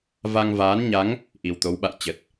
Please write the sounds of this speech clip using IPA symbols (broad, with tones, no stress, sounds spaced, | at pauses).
v a˧ ŋ v aː˨˦ n ɲ a˨˦ ŋ | ʔ i˨˩ w t̪ o˨˦ w ɓ a̰˧˨ j t͡ɕ ə˨˩ t̚